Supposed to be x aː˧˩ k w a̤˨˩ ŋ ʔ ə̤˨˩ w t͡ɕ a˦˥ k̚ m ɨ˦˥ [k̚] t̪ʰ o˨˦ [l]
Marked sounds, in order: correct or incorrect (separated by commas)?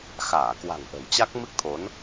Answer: correct, incorrect